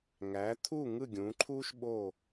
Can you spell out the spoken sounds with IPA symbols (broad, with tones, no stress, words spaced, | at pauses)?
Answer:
ŋæ˩˥t̪ʰu˥˩ ŋɯ˥˩ɡʲũ˩˥ǃʰuː˥ʃ ɓo˥˩